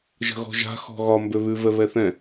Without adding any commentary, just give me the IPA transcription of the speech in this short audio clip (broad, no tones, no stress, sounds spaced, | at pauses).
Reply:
ʒ ə̤ ɣ ɔ̤ ʒ a̤ x ɔ̤ ɣ ɒ m b ø β ʉ v ɛ β ɛ θ ɛ̃